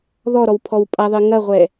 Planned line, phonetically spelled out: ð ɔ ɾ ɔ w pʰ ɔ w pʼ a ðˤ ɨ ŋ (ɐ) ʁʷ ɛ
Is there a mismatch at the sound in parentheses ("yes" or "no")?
no